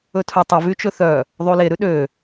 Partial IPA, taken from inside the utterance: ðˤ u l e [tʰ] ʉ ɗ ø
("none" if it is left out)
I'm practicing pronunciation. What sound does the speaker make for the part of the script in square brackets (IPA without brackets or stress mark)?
ɾ